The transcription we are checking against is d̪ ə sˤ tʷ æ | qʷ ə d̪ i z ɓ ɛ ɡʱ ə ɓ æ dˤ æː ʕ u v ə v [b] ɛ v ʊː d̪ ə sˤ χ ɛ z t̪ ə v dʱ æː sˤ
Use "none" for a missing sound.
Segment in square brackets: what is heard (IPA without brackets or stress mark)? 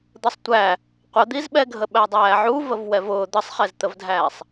w